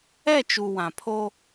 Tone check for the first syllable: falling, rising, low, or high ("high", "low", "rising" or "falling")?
falling